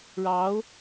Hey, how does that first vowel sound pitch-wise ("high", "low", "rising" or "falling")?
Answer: rising